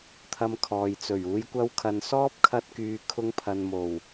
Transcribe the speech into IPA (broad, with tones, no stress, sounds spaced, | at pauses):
t̪ʰ ɐ˧ m kʰ ɔː˨ j t͡s ɵ˨˩ ɥ uː˨˧ j kʷ ɐ˧ w kʰ ɐ˨ n s ɔː˥ p̚ kʰ ɐ˧ t̚ k yː˧ kʰ ʊ˧ ŋ pʰ ɐ˨ n m o˨˩ w